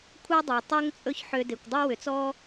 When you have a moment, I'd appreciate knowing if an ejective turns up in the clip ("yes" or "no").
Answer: yes